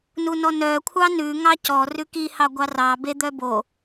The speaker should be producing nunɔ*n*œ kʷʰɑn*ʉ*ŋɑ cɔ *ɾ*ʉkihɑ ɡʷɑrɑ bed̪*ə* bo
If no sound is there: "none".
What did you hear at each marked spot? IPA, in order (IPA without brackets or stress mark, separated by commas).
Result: n, ʉ, r, œ